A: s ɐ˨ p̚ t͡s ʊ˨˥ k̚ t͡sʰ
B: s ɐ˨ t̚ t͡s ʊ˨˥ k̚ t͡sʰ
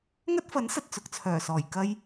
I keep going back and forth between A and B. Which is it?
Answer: B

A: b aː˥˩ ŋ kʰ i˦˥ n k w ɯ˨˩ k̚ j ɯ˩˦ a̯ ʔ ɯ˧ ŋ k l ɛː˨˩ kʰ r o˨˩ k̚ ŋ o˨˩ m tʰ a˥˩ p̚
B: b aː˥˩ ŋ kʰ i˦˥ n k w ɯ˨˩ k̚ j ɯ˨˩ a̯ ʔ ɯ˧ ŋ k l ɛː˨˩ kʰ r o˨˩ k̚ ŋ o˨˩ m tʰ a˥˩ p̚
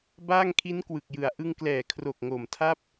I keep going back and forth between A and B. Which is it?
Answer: A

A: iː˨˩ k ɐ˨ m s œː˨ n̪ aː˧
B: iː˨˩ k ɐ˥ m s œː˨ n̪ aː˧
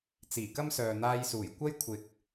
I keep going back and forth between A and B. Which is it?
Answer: B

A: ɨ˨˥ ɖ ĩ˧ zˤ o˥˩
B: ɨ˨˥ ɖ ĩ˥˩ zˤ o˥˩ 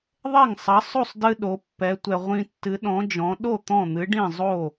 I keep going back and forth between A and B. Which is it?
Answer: B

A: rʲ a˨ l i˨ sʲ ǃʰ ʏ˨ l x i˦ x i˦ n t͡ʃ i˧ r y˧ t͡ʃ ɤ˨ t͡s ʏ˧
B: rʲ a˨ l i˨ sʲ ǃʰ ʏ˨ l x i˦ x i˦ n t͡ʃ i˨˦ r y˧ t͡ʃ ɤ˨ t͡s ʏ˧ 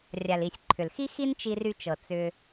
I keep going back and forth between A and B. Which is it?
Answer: A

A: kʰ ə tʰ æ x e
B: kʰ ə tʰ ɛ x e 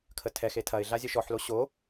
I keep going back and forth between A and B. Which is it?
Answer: B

